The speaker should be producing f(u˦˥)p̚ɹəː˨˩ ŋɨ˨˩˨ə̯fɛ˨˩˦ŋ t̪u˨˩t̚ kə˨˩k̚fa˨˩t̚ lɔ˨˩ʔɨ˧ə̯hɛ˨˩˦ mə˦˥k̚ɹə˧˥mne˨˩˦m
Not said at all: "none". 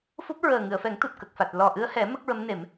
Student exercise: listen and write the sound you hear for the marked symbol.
u˦˥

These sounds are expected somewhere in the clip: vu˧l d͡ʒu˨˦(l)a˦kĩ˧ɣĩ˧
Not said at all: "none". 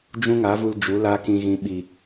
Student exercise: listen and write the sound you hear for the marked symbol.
l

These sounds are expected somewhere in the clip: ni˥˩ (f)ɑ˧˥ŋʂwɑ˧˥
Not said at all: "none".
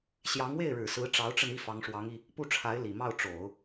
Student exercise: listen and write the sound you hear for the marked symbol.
f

